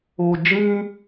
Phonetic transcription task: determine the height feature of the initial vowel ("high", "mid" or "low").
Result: mid